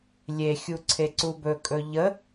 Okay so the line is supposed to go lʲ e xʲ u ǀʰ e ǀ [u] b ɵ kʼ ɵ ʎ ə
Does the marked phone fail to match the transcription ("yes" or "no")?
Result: no